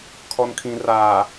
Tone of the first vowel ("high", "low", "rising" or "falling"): low